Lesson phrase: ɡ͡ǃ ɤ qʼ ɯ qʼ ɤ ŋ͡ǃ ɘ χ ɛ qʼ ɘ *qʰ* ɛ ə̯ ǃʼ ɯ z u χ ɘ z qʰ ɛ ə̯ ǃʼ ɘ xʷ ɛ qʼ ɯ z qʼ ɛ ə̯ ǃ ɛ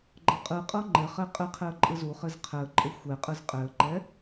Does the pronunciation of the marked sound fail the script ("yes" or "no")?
no